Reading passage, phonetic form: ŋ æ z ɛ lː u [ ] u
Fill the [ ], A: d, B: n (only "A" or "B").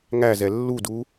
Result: A